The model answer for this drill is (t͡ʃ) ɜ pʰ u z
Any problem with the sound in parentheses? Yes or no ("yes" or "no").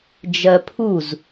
yes